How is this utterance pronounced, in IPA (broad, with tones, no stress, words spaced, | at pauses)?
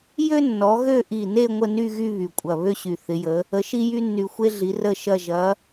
jø˥nːɔ˨˦ɣø˥˧ ʔi˧˩ne˥˧ ŋʷə˥˧ny˥˧ɣy˥˧ βy˧˩kʷʼɐ˧˩ βø˥ɕy˧˩θɪ˨˦jə˨˦ | ə˨˦ʃi˥ jy˥nːy˧˩xʷe˥ɮi˨˦ rə˥˧ʃɐ˥˧ ʒɐ˨˦